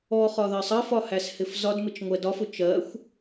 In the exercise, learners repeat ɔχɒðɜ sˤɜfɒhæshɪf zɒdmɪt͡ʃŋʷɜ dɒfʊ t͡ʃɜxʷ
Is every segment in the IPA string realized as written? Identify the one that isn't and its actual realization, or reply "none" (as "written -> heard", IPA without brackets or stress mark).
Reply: none